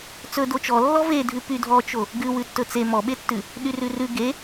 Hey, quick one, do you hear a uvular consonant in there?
no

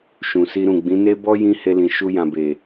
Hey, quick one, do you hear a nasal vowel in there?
yes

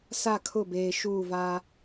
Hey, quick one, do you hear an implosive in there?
no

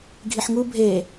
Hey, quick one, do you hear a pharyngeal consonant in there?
yes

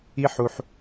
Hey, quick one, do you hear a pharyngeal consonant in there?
yes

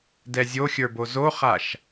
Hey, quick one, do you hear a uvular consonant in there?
yes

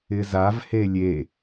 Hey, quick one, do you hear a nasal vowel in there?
no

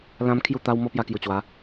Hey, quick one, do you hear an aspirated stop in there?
yes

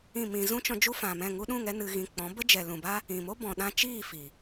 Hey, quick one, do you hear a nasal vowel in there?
yes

